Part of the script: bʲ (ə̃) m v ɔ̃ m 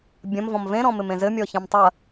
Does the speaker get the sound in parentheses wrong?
yes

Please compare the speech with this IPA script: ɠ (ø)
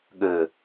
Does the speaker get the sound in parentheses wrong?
no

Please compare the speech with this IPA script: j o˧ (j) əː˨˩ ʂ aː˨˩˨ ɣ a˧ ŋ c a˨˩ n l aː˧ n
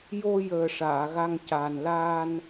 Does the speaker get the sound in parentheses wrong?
no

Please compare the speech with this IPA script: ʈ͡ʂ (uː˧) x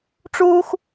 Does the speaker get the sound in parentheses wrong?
no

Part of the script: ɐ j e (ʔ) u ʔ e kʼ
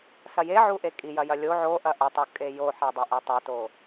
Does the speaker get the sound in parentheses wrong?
yes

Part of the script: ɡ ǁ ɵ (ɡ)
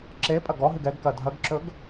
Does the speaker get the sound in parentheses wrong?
no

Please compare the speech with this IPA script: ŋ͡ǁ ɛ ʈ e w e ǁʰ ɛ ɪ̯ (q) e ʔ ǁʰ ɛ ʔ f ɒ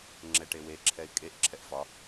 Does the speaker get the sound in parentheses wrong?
yes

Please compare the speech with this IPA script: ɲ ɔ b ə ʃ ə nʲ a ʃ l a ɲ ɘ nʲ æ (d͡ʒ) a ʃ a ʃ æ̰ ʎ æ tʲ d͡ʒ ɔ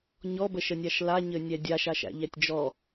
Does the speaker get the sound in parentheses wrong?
yes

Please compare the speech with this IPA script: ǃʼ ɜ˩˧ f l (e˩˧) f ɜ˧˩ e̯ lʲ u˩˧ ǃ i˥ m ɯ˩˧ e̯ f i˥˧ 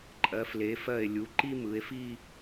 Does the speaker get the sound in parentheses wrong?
no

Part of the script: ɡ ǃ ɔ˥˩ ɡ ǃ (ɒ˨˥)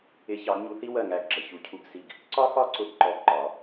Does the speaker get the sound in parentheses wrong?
no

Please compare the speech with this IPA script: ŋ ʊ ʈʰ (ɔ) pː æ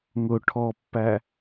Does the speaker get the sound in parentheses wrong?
no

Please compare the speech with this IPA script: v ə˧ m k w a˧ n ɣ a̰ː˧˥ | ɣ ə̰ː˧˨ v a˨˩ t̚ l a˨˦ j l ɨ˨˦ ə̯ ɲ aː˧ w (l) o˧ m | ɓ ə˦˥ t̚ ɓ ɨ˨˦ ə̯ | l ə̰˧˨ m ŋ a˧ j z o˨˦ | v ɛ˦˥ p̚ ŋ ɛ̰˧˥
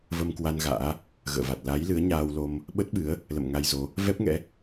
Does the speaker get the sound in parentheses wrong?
no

